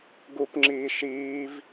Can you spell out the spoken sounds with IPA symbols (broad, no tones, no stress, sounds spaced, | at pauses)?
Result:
ɡ u p ŋ͡ǁ iː ʃ iː v